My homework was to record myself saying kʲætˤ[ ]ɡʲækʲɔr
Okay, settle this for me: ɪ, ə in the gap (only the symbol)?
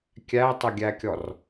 ə